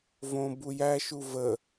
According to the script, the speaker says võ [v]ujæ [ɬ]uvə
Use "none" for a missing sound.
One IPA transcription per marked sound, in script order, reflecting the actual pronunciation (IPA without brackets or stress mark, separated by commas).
b, ʃ